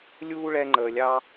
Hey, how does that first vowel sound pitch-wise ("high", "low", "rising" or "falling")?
high